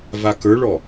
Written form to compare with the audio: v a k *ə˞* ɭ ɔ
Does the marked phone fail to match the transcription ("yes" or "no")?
no